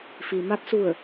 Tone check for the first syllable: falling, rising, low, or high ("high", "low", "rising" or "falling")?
low